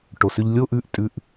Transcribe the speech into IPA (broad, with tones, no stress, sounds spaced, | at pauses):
ʈ o˩˧ s ʏ˧ ʎ lʲ o˧˥˧ ʔ ʉ˥˩ ʔ tʼ ʉ˧ ʔ